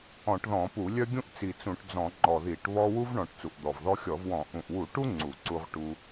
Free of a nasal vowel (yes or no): no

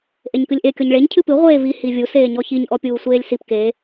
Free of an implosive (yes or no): yes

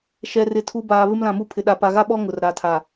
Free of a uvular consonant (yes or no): yes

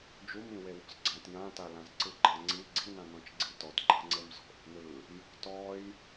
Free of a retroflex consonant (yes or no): yes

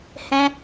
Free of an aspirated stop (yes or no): yes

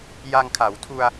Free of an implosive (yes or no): yes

